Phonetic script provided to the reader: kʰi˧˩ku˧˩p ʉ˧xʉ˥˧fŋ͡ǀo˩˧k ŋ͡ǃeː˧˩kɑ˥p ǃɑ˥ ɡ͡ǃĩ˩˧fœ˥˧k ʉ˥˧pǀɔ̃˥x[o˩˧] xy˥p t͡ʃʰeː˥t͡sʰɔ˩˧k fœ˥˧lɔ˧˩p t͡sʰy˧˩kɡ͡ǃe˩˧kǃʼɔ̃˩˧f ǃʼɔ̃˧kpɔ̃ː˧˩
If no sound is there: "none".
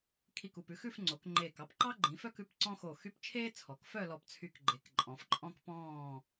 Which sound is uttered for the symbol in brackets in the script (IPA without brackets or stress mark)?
o˧˩